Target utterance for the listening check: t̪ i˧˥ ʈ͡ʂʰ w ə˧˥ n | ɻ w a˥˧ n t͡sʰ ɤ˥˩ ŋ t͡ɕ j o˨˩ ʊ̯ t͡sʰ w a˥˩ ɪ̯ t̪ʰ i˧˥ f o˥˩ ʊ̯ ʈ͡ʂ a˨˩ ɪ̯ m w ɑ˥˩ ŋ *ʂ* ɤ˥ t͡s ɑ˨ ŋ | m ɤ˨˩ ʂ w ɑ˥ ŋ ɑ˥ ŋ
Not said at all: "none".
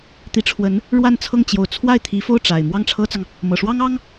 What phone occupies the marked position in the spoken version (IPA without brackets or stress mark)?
ʈ͡ʂʰ